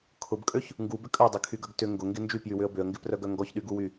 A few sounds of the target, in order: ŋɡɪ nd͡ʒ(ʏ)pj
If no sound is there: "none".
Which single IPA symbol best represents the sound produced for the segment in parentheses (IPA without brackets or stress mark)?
y